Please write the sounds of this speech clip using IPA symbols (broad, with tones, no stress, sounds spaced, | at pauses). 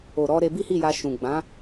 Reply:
o˨ ɾ ɔ˧ ɾ e˧ b i˦ h i˦˨ j a˧ ʃ ũ˨ ɡ͡b ã˨˦